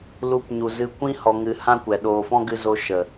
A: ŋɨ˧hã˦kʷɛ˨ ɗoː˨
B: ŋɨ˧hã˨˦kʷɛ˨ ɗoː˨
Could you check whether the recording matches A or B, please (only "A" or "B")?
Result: A